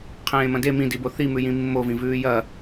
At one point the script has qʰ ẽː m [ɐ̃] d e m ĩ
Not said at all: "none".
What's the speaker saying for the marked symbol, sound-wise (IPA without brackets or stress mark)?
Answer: ɐ̃